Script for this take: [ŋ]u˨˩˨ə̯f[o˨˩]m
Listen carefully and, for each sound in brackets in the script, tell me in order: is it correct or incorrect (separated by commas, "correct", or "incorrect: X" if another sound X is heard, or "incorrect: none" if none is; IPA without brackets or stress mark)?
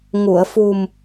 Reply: correct, incorrect: u˨˩